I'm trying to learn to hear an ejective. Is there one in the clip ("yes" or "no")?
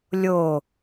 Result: no